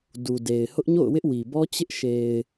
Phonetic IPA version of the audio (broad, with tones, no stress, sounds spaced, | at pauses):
d u˨ d e˨ ɪ̯ h ʊ˦ ʔ ɲ o̰˦˨ ʊ̯ w ɪ˦ ʔ w i˨ b ɔ˦ t͡ɕ ɪ˦ ʔ ʃ e˨ ɪ̯